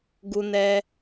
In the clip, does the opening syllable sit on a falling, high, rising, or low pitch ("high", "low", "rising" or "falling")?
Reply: high